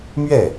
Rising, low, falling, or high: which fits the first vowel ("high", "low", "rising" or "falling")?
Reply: falling